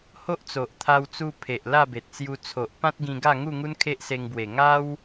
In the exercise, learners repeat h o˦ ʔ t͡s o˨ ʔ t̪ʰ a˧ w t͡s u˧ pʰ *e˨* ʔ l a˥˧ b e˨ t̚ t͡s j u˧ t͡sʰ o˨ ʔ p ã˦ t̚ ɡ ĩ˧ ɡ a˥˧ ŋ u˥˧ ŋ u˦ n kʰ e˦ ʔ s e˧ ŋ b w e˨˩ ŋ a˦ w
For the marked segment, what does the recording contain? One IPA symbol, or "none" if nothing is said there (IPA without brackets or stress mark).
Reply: e˨